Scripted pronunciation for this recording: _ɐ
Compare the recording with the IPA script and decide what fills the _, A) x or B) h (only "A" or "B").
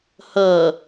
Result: B